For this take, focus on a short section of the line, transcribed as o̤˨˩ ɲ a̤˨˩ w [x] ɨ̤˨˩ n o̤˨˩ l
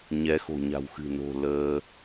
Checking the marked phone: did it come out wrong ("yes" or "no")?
no